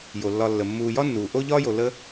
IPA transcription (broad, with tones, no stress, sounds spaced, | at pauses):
j o˩ lː ɒ˨ lː ə˩ mː uː˨ j ɒ˥ nː uː˩ ʔ o˥ ʎ ɒː˥ j o˨ l ə˦